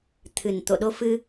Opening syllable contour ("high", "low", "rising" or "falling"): low